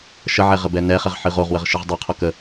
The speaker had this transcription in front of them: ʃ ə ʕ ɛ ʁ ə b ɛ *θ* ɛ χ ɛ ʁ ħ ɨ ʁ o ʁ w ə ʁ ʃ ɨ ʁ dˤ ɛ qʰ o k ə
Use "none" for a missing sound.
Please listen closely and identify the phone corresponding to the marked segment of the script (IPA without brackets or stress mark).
n